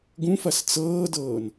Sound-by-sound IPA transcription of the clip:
ɡ ũ f ɐ s t͡s ɤː d ɤː n

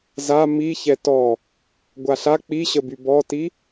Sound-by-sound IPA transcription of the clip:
z a m i ç ɛ t ɔ | ɡʷ a ɬ a k͡p i ɕ ə b y b ɔ t i

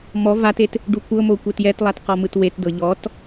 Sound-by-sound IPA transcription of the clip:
m ɔ v a t e t | ɖ u kʷ ɤ m o kʷ e t j ɛ t lˠ a t q ɔ m ɯ t w e t d ɤ ʎ ɔ t

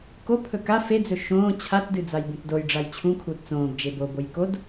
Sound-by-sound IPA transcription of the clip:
k o pʰ ɵ k a f e d͡z ɵ ʃ õː t͡ɕʰ a t d ɨ d͡z a j b ũ t d o j ɖ͡ʐ a j t͡ɕʰ ũ kʰ uː t t͡s õː b d͡ʒ e b o b o j k o d

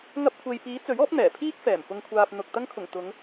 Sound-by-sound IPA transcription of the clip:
ŋ ɐ˧ p̚ kʷʰ e˨ j p iː˨˥ t͡s ɵ˨˥ ɥ ɔː˨˥ p̚ n̪ ɛː˨˩ pʰ iː˥ k̚ f ɛː˨˩ m p ʊ˨ ŋ kʷʰ aː˨ p̚ n̪ ʊ˨ k̚ t̪ ɐ˧ ŋ kʰ ʊ˨˩ ŋ t̪ ʊ˨˧ ŋ

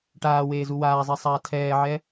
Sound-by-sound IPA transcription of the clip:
ʈ aː w eː z u w aː zˤ e sˤ aː tʰ ɛː ʕ ɛ

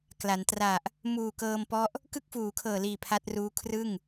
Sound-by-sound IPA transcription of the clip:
k l a˩˦ n t r a˨˩ ʔ | m uː˨˩ k ɤː˧ m p ɔ˦˥ ʔ | k ɯ˥˩ k̚ f uː˩˦ kʰ ɤː˨˩ l iː˨˩ pʰ a˦˥ t̚ r uː˦˥ kʰ r ɯ˥˩ ŋ

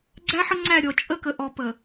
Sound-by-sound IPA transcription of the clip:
ɡ͡ǀ æ˦ ħ ə˦ ŋ͡ǀ æ˦˨ ɾʲ ɔ˨ t͡ʃʼ ə˦ k ə˨ ʔ ɔ˨ p ə˨

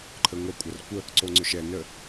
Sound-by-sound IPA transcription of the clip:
ǃʰ ə ŋʷ ɐ kʷʼ ɐ r kʷ ə | ǀ o ŋ͡ǀ ɵ ʃ ɛ n ə

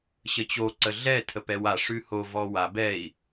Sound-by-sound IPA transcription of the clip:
ɕ ə t͡ɕ o ǀ ə ɮ ɛ tʰ ə p ɛ w a ʂ ʉ h o v ɔ w a b ɛ i̯

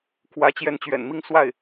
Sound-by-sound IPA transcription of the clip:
kʰ w ä˧˥ t͡ɕ j ɛ˧˥ n t͡ɕ ɥ ɛ̰˨˩ n m i˥˧ ŋ s w a˥˩ ɪ̯

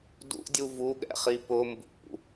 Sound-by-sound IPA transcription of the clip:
d ṵ dʲ u v u ɠ ɛ̰ χ i p ʊ m b ṵ

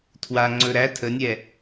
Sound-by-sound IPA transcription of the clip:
tʰ w a ŋ͡ǀ ɵ ɾ æ tʰ ə nʲ ɛ

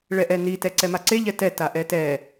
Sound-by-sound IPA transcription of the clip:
ɭ ɛ ʔ ɛ n i t ɛ ǀ ɛ m a ǀ e ʎ ɛ t ɛ t a ʔ ɛ t ɛ

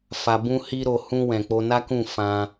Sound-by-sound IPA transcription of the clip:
f a˨ b ũ˧ h i˧ ɾ o˨ h ũ˧ w ɛ̃˨ k͡p o˧ n a˦ k ũ˦˨ f ã˧

